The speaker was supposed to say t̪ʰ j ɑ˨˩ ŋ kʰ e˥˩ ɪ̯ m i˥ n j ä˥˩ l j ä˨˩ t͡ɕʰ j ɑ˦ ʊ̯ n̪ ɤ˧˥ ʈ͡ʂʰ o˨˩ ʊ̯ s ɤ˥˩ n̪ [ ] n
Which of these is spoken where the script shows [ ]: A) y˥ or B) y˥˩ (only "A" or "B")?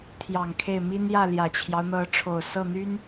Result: A